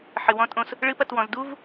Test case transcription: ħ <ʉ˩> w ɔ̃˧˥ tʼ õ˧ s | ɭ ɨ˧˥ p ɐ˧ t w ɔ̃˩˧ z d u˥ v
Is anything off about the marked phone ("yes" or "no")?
yes